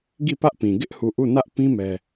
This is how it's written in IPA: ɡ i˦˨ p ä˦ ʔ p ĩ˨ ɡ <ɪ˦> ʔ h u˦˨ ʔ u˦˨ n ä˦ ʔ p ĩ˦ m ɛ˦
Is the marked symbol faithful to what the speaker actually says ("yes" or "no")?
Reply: yes